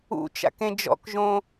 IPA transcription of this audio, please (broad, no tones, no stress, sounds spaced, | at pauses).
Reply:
ṵ t͡ʃ a̰ k ẽ d͡ʒ ɔ̰ k ʒ õ